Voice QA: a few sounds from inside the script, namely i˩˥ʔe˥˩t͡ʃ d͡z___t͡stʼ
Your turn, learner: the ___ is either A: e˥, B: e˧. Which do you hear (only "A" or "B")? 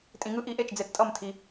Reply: B